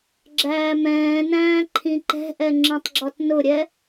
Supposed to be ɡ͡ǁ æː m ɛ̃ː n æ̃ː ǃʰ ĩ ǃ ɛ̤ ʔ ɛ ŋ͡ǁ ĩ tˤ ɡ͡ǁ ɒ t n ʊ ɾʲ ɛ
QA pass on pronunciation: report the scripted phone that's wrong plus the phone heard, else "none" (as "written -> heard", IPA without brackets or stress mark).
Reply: none